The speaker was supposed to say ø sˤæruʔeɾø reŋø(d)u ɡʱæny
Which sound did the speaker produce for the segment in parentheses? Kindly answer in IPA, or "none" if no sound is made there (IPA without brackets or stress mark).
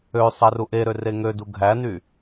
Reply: d